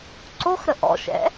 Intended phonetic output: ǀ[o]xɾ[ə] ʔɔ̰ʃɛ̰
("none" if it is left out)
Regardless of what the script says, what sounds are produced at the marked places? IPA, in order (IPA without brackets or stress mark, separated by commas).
o, ə